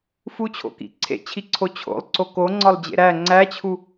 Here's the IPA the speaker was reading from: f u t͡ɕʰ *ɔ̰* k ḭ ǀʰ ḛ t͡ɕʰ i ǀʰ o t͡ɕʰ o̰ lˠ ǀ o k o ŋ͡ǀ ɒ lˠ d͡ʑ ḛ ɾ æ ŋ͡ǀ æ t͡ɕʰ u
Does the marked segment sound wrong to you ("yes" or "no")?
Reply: yes